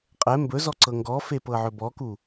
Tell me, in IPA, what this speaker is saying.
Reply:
qʼɛ mbɵzɔǀɤ ŋɡɔfepɤʕɵ bɔku

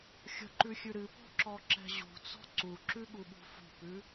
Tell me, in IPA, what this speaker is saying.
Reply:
xʲə̤ǃʉxʲʉ ɾɨpɔ̤ǁɔǁɛ̤ ʑṳt͡sɔ̤ ǀuǁʉɠuɓṳ fṳpʉ

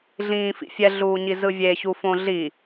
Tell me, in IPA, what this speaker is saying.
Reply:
ɮĩːfḭfʲɛ ɮuːɲizɯvʲe çufõɮi

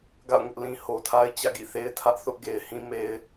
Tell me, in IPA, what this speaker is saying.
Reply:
ɡa̰˦˨ʊ̯ŋʊ˦ʔ lĩ˨ ho˨tʰa˦ɪ̯ t͡ɕä̰˦˨ɡḭ˦˨θe˦ɪ̯tʰä˦ʔ θʊ˦ʔ ɡe˨ɪ̯hĩ˦me˦ɪ̯

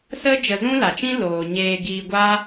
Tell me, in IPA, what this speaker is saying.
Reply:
sə˦ d͡ʒə˧zũ˦la˨t͡ʃĩ˦ loː˨ɲeː˧ ɡiː˧ɡʷa˦

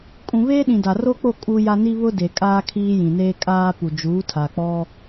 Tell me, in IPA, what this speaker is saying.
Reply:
kʼũ˨βeː˦ɗĩ˨ da˨ro˦k͡po˦˨ kʼu˦ja˦ ni˦βʊ˦de˨ kʼaː˦kʰiː˦ jĩ˨neː˦kʼaː˦ pu˨d͡ʒuː˨˦tʰa˨k͡pɔ˦

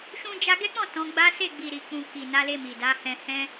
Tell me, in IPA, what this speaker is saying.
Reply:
ʃũ˧d͡ʒa˧ɡɛ˦ k͡pɔ̃˦˨ tɔ̃˨˦ɡ͡ba˦ se˦˨ɡ͡bi˨ɾi˨k͡pũ˨ ki˨na˨˦le˧mi˨ da˨˦hɛ̃˧hɛ̃˦

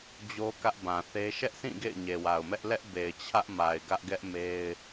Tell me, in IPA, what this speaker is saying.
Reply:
d͡ʑo˦kä˦ʔbã˨θe˦ ʃɛ˦ʔsĩ˦˨ ɡḛ˦˨ɪ̯ɲe˨wa˨ʊ̯mɛ˦ʔ lɛ˦ʔbe˨ɪ̯ t͡ɕʰä˦ʔ ma˨ɪ̯ɡä˦ʔɡɛ˦ʔ me˦ɪ̯

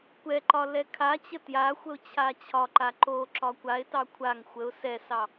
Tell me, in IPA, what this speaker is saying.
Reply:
kʷɛǃɒ lɛkʰat͡ɕə tjaxʷəʊ̯ t͡ɕʰat͡ɕʰɒǃa ǃo ǁɒkʷaɪ̯tɑ kʷʰaŋ xʷəʊ̯ sɛsɑ

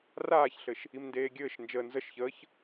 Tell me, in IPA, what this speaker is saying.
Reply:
raːçɬɘʃ | imndeːɡʲɘːʃnd͡ʒəː nzəʃçəːç

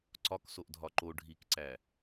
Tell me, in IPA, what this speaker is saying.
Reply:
ǀɒk soʔdʱɒǃo ɖʱikǀæ

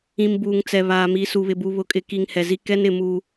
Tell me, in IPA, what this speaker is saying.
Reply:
ĩ˨m buː˨ŋt͡sɛ˨βaː˨ mi˨su˨βɪ˨bu˨ βʊ˨kʼɪ˨ki˨ŋ hɛ˨zi˦ kɛ˦nɪ˨ muː˨

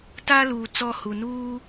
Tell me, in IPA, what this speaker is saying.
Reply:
ta˦ luː˨t͡sɔ˦hu˨ nuː˦

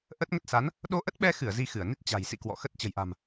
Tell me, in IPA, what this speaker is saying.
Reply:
ʔə˦˥t̚ŋə˦˥t̚sa˨˦n | ɗo˧ʔə˦˥t̚ɓɛ˧xɨ˧˩ə̯ zi˧xɨ˧˩ə̯ni˦˥t̚ t͡ɕa̤˨˩jsḭ˧˨ kwɔ̰˧˨xə˦˥t̚ t͡ɕə̤˨˩jʔa̤˨˩m

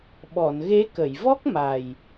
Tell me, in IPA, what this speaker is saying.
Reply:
ɓɔ˨˩˨nɣe˧˥ kə˨˩˨jvɔ˦˥k̚ma˨˩j

